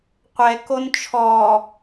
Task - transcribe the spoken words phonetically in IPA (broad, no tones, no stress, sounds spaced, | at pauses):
qʷ ɛ k o n t͡ʃʰ ɔ